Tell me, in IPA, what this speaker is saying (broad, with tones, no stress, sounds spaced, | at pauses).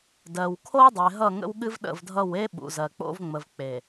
d ɜ˨ w kʰ o˦ w dˤ e˨ ɦ ʌ˦˨ ŋ ə̰˦ w ɠ ɨ˦ v ɗ ə̰˦˨ v dʱ ʌ˦˨ w e˦ ɓ ṵ˨ z ɜ˨ k͡p o̰˦ v ŋ͡m ə˨ v k͡p e˨